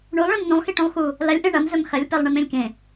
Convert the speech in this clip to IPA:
ɳulˠɭĩm nũlˠxiʈũlˠ xu | lɐlʲ ʔẽɳɐmzɵm xɐlʲpelˠ ɳimẽlʲkẽ

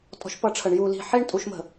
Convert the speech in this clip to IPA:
tʼɔ̤˦ʃpʌ˦ʈ͡ʂʰə˨ɳ ju˨li̤˨ħi˦ɳ tʼu˨˦ʃmə̤˨

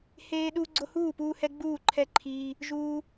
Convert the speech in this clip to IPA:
heː˦ɗu˦ ɡ͡ǀo˦huː˥˨ puː˦hɛ˦ ɡ͡buː˥˨ǃʰɛ˥˨ǃʰiː˦ | ʒuː˦

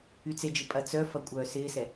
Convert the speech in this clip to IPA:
yt͡sed͡ʒɪ pʼɐt͡sœfɐ kʷʼœːsɪːsɛ

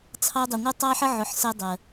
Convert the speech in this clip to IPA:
t͡sʰɑ˦dˤɪ˨ ŋʷɜ˦tˤɑ˦ħə˦ ʕʊ˧ħsɜ˦dˤɜ˨

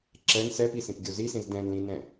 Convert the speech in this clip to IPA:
ǁɛn sɛpisĩpɡʲo zisĩz dɛ̃nlĩnɛ̃

